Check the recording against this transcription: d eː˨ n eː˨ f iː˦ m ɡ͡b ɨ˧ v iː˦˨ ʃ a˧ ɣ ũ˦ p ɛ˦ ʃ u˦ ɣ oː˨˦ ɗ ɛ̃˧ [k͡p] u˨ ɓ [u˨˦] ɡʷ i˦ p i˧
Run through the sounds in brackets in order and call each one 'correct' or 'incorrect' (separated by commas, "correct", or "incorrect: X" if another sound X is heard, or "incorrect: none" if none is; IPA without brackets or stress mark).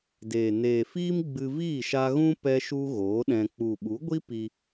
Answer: correct, correct